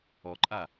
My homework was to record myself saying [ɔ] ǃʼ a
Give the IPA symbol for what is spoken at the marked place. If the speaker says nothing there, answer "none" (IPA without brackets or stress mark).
ɔ